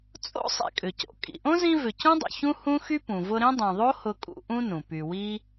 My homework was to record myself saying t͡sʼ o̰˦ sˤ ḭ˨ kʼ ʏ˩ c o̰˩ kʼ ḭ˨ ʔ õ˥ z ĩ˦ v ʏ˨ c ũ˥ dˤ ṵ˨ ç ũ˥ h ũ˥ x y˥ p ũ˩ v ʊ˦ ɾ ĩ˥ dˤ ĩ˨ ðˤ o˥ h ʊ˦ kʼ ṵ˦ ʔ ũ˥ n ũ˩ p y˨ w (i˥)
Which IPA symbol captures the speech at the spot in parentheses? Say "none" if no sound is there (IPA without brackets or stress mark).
i˥